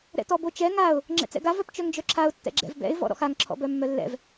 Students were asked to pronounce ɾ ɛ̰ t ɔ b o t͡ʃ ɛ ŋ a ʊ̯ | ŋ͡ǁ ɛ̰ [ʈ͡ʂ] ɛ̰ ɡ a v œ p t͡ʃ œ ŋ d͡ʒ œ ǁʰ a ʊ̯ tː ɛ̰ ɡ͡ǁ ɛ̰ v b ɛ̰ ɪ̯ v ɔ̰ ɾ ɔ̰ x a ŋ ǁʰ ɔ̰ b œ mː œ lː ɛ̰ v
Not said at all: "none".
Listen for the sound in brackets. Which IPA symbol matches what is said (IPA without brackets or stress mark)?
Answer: t͡s